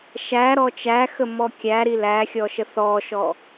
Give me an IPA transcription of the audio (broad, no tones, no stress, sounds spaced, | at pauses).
ʃ æ ɾ ɔ t͡ʃ æ x ə m ɔ kʲ æ ɾ i l æ xʲ ɔ ʃ ə θ ɔ ʃ ɔ